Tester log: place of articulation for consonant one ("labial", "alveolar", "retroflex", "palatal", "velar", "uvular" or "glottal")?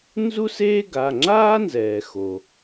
alveolar